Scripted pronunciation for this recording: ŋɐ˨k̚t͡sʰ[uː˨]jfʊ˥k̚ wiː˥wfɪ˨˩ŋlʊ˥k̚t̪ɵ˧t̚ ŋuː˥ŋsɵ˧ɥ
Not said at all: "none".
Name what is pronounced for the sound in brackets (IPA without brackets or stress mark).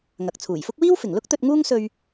uː˨˩